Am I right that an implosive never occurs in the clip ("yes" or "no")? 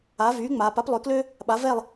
no